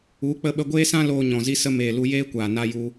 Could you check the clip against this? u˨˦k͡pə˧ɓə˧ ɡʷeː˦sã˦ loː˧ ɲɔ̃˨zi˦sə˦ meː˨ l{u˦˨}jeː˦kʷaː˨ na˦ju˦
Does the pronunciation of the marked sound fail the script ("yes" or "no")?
yes